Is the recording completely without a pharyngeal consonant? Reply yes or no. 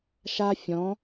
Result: yes